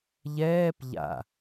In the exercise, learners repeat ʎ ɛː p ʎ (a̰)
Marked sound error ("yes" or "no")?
no